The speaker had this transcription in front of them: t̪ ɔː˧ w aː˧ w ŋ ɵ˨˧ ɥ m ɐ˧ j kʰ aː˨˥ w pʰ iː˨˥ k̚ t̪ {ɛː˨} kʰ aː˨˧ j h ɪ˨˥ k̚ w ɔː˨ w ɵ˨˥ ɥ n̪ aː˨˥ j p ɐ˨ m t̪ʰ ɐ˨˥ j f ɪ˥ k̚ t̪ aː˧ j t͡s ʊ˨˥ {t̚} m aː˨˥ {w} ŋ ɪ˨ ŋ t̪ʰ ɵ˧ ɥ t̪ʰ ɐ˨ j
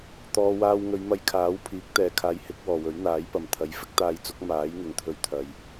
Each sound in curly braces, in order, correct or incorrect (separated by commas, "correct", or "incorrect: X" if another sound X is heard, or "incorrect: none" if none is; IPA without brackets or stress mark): correct, incorrect: k̚, incorrect: j